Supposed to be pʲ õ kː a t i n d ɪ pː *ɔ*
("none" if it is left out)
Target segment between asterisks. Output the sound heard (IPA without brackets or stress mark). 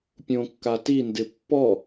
ɔ